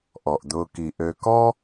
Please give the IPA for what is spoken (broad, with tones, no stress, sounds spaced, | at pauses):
ʔ ɔ˩ ʔ d̪ ʊː˨ k i˩ ʔ ø˨ k ɔ˦